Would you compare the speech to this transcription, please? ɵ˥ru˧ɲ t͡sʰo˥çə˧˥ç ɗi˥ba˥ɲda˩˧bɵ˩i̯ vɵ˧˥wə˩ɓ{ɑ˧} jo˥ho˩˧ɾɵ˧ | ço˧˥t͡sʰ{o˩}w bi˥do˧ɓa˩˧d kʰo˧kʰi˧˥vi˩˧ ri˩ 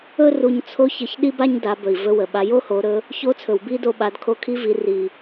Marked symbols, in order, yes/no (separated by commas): no, no